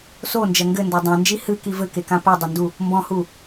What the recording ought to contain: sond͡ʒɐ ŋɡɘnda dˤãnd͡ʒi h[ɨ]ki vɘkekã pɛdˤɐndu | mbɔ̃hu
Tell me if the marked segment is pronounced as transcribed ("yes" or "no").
yes